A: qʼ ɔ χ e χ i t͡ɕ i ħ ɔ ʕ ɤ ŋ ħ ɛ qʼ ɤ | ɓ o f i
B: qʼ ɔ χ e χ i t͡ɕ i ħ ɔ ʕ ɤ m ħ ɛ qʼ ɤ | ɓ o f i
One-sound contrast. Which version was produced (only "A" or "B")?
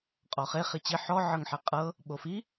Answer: A